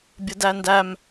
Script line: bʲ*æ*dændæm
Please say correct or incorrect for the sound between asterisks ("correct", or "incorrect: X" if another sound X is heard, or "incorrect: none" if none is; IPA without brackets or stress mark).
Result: incorrect: ə